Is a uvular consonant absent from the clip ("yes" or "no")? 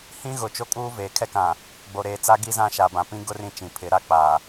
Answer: yes